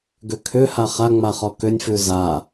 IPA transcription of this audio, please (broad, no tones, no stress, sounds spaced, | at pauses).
ɡ ʏ kʰ ʏ h a χ a ŋ͡m a χ ɔ k ʏ nʲ f ʉ z a